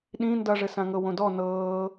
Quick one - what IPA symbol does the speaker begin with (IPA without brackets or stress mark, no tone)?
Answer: ɗ